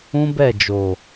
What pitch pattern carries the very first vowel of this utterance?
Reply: high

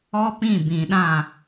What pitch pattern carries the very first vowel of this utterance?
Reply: high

